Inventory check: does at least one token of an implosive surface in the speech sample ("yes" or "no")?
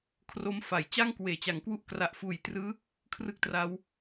no